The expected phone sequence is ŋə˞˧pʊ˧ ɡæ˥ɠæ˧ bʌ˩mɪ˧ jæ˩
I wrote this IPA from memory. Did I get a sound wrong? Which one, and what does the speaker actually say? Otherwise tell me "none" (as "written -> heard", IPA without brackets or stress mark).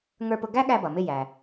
none